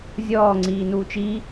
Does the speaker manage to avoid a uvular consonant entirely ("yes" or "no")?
yes